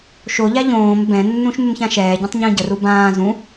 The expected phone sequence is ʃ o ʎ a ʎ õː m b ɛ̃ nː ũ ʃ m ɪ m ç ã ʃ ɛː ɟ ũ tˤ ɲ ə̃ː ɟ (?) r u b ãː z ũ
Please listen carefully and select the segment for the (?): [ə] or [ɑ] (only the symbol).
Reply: ə